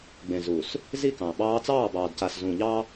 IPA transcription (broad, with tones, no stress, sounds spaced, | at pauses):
ɡ͡b ẽ˨ z u˨ s | z i˦˨ k ɑ̃˨ ɓ ɑː˦ t͡s ɑː˦˨ b ɑː˨ d c a˨ s z ũː˨ ʎ ɑ˦